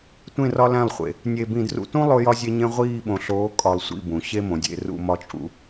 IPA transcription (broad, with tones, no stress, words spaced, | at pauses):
tʷẽ˦˨rɒ˦ læ̃˦˨lˠχʷḛ˨ | nʲe˨bĩ˨drṵ˨tũ˦ lˠo˦jɒ˦zʲe˦ɲẽ˦ ʁʷiː˦˨ɓõ˨ ɬoː˨˦ kʼɒ˨lˠ sʷḭ˦˨bũ˨ ɕe˦mõ˨dʲḛ˦˨ rṵ˦˨mɒ˦t͡ʃʼṵ˦